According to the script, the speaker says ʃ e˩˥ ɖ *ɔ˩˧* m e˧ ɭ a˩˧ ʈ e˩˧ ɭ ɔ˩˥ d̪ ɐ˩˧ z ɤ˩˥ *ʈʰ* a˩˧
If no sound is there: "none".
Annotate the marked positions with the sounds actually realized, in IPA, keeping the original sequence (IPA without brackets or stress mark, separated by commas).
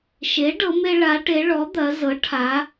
ɤ˩˧, ʈʰ